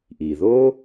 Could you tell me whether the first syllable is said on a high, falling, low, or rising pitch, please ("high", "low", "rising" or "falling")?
low